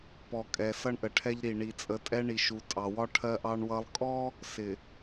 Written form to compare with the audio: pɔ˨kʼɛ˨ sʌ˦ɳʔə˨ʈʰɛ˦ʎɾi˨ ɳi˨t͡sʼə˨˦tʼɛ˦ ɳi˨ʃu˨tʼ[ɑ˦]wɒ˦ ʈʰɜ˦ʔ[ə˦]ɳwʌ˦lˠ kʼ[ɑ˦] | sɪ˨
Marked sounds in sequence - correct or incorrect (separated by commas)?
incorrect, incorrect, incorrect